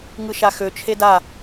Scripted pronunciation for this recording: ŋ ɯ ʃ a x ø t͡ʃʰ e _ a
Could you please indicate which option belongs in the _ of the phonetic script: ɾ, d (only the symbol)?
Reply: d